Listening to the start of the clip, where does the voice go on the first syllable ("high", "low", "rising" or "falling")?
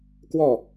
falling